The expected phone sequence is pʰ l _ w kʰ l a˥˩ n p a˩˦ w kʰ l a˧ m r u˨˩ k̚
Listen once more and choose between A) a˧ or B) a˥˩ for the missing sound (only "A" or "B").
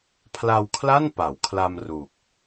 A